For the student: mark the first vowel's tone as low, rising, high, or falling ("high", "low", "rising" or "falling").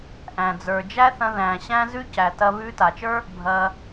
low